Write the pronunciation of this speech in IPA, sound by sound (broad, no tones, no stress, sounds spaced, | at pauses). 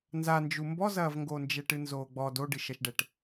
n z a n d͡ʒ u m b ɔ z ɐː v ŋ ɡ oː n d͡ʒ ɛ ʈ ɨ n z oː ɡ͡b ɔ d o ɖ ɨ ʃ ɐ ʃ ɖ ɛ ʈ